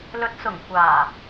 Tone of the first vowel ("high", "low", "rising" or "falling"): rising